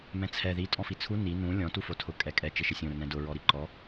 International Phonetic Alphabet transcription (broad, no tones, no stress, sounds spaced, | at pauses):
m ɛ̃ t͡sʰ ɛ ð i tʼ ɔ̃ f i t͡sʰ u n i n ũ lʲ ɔ̃ t u f o tʰ ʊ kʼ ɛ kʼ ɛ t͡ʃ ɪ ʃ ɪ sʲ õ ɾ ʊ n ɛ̃ d ʊ ɹ ɔ ɾ i ǃ ɔ